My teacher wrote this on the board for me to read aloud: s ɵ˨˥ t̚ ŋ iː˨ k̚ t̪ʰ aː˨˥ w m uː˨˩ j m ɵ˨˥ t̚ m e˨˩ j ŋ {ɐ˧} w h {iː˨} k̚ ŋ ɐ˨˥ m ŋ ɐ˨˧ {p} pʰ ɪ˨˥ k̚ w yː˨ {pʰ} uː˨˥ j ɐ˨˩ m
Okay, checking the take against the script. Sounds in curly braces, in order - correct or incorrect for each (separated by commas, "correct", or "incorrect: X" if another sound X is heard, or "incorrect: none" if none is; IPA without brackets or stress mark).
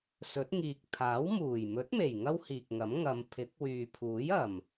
incorrect: ɐ˥, correct, incorrect: m, correct